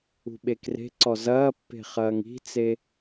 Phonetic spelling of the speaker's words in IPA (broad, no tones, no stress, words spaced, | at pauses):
ṳɓekre̤ǀɔ zɐːpːe̤ χɐːŋi̤t͡se